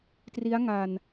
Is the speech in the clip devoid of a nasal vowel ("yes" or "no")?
yes